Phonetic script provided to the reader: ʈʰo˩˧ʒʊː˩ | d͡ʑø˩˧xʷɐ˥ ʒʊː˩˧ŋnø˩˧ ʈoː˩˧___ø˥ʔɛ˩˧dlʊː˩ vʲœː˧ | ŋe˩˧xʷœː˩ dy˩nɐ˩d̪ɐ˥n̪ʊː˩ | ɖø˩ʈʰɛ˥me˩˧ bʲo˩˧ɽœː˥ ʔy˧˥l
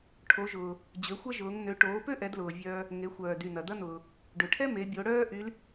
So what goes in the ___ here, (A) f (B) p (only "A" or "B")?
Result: B